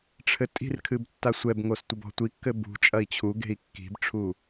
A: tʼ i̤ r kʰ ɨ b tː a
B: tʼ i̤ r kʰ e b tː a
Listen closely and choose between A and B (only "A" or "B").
A